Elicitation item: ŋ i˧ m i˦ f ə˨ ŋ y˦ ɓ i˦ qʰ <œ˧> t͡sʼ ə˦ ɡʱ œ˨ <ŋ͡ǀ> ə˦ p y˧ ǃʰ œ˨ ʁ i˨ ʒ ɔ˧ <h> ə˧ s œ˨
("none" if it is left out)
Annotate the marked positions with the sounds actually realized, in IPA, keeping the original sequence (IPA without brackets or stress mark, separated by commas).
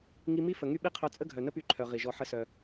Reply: œ˧, n, ħ